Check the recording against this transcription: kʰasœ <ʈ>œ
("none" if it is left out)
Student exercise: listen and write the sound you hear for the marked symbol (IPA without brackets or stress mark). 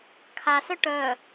ʈ